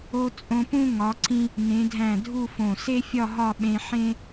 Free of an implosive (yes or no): no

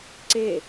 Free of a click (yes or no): no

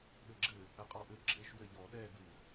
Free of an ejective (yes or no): no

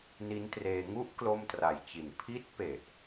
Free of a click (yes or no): yes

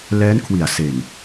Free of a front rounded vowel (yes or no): yes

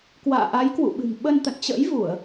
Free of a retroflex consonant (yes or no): yes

